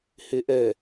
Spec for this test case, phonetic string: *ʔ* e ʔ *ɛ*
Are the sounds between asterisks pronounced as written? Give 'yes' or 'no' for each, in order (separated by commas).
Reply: no, yes